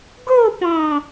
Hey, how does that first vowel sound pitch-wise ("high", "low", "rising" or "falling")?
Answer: falling